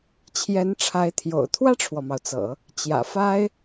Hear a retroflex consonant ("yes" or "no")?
yes